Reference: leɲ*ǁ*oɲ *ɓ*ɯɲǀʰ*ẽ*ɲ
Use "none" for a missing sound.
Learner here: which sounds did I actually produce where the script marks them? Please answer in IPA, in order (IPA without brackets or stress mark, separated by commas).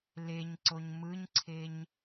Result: ǀ, m, e